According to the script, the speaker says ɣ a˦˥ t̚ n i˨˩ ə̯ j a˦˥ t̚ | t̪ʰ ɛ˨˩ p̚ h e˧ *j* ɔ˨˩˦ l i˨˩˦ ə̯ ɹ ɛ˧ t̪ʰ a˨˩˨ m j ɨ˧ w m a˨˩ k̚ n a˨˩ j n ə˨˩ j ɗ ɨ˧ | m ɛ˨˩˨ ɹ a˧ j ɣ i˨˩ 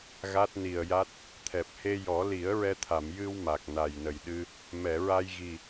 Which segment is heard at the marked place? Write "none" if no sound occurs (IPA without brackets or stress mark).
j